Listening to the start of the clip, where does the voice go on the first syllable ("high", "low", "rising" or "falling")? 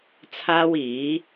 high